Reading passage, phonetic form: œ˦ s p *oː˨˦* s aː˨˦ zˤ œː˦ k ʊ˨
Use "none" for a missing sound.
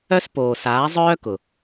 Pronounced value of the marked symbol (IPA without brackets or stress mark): oː˨